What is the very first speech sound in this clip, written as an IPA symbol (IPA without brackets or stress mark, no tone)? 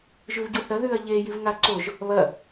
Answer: ʒ